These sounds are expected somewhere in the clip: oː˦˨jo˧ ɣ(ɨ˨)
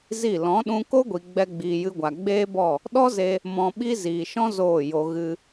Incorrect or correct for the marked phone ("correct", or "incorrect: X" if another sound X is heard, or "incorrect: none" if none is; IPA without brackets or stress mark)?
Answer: incorrect: ɨ˧